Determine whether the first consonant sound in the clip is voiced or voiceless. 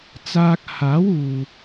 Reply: voiceless